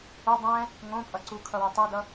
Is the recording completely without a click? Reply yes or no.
no